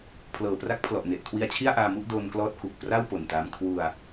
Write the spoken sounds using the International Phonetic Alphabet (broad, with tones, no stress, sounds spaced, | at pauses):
pʰ l ɤː˨˩ p r a˦˥ k̚ pʰ l ɔ˨˩ ʔ n e˨˩ ʔ kʰ w i˧ a̯ t͡ɕʰ i˥˩ a̯ ʔ aː˧ m u˥˩ ʔ d oː˧ n k l ɔː˦˥ t̚ k u˨˩ k̚ p r a˥˩ w p o˨˩ n t aː˦˥ m kʰ w u˧ a̯